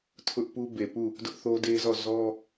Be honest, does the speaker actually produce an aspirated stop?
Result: yes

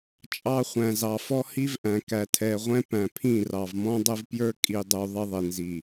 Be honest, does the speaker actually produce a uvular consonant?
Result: yes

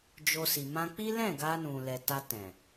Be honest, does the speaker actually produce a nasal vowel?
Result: yes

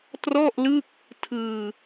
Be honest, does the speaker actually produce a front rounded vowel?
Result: no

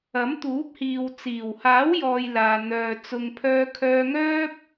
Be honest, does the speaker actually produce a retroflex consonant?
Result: no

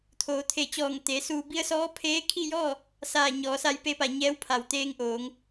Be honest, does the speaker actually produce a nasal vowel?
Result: no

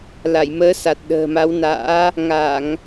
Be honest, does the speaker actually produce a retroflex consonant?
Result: no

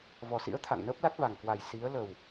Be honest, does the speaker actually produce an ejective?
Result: no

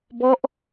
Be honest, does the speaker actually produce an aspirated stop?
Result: no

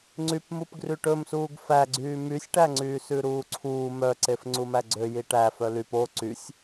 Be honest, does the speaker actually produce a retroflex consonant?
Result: yes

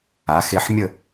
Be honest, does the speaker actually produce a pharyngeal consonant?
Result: yes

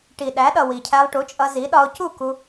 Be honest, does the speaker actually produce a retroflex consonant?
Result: yes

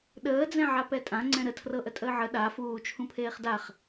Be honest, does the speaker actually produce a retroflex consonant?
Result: no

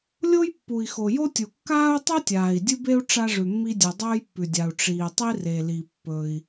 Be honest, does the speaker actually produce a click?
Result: no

